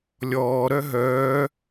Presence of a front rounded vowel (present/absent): present